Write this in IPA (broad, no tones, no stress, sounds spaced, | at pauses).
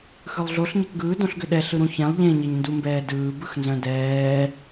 x ɯ lˠ ɮ o ɬ ɲ ɛ k ɡ ɯː d õ ɬ ɡ ʏ ɗ ɛ ɬ ɯ ɾ ũ ç ɛ̃ lˠ ʎ ẽ ɲ e ɲ n d u m b ɛː d ɯː b ɯ x n z œ̃ d ɛː